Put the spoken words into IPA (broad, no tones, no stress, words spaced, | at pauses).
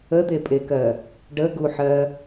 əd̪epʼekɜ | ɖəɡuħɜ